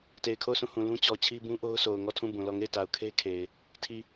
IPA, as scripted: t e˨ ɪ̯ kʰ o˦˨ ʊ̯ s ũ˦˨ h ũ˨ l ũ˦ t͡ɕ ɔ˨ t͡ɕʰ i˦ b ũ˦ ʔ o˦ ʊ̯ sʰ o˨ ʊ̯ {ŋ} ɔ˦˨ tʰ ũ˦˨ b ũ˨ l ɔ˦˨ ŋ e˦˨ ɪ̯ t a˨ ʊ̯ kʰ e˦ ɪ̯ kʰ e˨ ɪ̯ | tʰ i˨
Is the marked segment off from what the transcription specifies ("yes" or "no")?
no